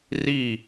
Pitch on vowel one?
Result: falling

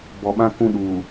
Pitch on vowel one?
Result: low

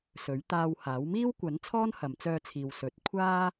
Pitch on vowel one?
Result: rising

